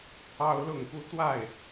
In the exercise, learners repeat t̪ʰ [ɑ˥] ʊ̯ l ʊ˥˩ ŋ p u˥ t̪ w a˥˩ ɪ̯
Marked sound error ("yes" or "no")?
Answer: no